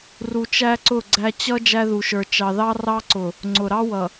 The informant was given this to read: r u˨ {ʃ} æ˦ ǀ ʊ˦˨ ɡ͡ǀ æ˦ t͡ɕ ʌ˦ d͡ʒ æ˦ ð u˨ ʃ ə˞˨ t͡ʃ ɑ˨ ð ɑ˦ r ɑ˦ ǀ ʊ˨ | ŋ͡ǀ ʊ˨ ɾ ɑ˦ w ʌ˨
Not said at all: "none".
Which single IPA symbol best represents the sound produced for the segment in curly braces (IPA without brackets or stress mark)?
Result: t͡ʃ